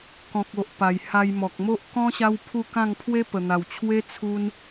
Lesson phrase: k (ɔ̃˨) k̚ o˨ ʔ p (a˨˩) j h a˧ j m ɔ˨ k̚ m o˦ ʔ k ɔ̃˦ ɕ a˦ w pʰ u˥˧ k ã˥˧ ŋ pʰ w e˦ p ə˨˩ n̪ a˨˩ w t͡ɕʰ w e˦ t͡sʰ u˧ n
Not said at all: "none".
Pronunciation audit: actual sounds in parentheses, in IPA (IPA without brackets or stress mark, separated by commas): ɔ̃˨, a˨˩